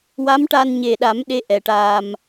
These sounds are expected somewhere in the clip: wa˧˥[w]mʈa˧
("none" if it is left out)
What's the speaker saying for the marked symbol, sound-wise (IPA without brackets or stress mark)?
none